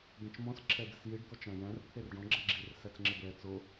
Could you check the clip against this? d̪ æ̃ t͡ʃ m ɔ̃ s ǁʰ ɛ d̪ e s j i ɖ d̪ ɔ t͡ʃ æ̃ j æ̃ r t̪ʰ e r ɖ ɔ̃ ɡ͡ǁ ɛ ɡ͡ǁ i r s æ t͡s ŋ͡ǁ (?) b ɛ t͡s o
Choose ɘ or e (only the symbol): ɘ